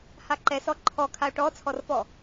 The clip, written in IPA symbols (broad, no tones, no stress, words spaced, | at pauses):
haǃɛsɔ ǃʰɔ kʰao̯ʈɔt͡sʰɔrfɔ